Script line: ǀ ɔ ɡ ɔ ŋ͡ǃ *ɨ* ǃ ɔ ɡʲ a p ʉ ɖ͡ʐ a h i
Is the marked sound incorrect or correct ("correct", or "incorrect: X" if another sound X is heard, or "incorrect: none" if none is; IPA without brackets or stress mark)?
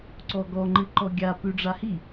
correct